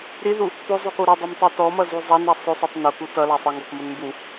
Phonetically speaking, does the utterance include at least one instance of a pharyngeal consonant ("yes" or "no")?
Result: no